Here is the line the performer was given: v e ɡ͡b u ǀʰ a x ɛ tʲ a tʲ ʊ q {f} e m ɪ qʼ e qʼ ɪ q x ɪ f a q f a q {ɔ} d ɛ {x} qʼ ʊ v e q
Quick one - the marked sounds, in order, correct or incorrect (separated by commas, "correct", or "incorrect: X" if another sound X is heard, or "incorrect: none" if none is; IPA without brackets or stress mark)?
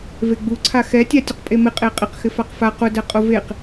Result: incorrect: pʼ, incorrect: ʊ, incorrect: none